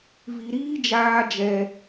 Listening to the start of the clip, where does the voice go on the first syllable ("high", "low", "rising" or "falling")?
low